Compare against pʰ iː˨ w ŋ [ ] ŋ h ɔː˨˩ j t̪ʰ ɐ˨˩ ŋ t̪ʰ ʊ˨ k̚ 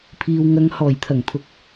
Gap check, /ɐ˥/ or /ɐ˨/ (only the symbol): ɐ˨